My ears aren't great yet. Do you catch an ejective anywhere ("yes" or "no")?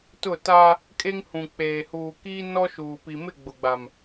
yes